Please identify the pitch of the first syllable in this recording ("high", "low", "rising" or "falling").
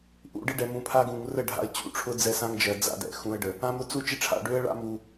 low